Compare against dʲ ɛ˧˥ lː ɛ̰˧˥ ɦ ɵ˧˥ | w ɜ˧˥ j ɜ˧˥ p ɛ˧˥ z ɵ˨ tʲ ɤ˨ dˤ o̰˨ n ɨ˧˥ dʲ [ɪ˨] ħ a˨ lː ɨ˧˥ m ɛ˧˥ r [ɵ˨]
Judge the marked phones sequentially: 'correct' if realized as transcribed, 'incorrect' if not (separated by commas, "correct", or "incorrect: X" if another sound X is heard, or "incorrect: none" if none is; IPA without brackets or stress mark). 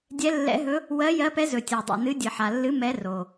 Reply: incorrect: ɨ˨, incorrect: o˨